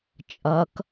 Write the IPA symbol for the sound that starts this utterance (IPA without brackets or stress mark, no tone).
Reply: t͡ʃʼ